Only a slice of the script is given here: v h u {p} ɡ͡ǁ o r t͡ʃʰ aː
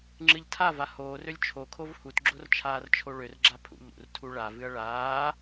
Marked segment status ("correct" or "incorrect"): incorrect